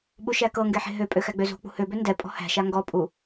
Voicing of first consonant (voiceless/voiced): voiced